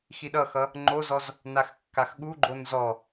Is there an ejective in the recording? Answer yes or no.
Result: no